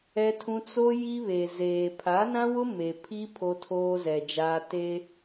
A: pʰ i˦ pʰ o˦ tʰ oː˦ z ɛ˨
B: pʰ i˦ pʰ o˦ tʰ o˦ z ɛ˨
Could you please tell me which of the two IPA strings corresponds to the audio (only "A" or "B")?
A